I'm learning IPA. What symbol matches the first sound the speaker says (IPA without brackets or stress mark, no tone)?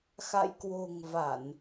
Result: x